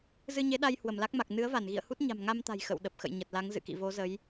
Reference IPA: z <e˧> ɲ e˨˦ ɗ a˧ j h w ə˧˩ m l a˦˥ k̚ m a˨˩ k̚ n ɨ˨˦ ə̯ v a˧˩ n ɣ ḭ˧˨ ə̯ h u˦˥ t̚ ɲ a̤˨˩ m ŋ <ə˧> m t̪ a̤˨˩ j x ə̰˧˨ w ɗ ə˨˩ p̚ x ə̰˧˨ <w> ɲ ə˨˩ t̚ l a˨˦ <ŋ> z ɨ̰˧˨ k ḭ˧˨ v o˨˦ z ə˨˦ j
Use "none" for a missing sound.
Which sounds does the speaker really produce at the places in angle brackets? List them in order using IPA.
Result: ɨ˧, a˧, j, ŋ

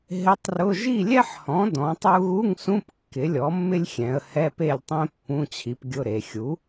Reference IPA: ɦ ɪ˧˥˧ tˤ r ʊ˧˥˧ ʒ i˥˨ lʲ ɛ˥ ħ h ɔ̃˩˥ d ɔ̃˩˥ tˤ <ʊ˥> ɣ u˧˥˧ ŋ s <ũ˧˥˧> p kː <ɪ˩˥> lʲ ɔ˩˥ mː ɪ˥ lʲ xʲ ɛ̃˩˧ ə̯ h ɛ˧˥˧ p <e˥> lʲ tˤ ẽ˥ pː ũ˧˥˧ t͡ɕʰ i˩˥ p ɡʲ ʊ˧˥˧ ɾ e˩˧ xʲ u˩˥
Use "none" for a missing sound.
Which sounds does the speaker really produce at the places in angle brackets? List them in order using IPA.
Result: u˥, ũ˧˥˧, ɪ˩˥, e˥˨

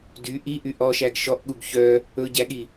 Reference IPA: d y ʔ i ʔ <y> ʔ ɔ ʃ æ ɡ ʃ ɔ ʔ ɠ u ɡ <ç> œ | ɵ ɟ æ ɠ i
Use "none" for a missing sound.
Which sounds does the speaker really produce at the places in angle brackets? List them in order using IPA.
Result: y, ç

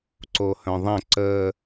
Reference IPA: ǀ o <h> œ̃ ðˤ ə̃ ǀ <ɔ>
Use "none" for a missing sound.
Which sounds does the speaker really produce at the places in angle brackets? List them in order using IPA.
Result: h, ə

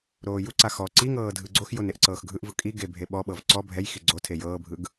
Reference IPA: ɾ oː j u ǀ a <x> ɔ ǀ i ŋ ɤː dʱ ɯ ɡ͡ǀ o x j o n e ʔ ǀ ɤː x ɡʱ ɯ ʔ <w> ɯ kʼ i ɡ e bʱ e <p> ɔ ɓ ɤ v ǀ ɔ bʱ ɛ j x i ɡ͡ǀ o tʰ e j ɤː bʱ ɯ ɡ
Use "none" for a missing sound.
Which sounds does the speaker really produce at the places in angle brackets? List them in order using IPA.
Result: x, v, ɓ

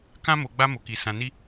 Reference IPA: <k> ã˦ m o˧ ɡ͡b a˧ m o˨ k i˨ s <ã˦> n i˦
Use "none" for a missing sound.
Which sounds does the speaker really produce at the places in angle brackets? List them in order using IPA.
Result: k, ã˧

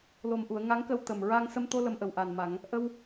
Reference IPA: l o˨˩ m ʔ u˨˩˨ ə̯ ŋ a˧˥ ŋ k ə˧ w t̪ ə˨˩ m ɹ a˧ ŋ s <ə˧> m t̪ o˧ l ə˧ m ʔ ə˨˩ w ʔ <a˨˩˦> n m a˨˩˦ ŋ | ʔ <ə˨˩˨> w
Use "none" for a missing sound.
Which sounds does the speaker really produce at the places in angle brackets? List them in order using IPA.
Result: ə˧, a˨˩, ə˧

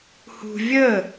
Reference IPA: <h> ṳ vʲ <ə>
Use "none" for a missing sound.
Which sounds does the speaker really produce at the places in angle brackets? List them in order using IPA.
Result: h, ə

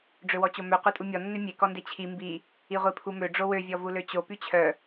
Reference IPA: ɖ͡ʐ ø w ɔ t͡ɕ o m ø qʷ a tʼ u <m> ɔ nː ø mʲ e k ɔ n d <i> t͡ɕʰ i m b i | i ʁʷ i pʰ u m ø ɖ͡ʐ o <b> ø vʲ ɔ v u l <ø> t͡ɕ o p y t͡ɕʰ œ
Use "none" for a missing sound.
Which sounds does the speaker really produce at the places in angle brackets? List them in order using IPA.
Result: mʲ, e, w, ø

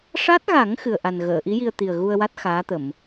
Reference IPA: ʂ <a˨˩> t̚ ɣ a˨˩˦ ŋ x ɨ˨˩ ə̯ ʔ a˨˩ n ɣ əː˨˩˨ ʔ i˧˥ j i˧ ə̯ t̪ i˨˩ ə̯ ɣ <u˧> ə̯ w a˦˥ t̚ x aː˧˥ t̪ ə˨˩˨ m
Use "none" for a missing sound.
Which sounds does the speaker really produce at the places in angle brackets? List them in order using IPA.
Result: a˦˥, u˧

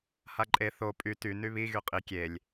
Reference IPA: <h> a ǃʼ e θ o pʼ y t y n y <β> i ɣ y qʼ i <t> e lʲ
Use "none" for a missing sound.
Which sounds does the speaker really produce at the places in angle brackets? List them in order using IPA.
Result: h, β, kʲ

